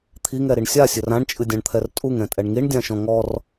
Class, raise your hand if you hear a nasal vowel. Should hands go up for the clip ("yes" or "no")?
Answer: yes